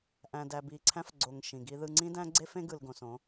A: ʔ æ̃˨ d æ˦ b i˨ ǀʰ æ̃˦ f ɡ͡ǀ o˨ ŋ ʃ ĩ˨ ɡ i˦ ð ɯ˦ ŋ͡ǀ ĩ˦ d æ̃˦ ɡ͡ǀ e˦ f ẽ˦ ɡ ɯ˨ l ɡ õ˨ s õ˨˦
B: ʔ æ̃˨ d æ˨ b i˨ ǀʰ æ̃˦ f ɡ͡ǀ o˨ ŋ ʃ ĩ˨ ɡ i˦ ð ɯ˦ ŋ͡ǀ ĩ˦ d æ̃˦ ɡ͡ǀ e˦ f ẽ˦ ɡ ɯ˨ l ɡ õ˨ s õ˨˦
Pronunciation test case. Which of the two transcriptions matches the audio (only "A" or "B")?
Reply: B